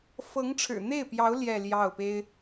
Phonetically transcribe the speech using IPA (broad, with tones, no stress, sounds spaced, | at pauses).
f ɤ˧˥ ŋ ʈ͡ʂʰ ɻ̩˨˩ n̪ e˥˩ ɪ̯ p j ɑ˧˥ ʊ̯ l j ɛ˥˧ l j ɑ˥˩ ʊ̯ p e˥ ɪ̯